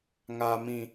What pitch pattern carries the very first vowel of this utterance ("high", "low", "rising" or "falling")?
high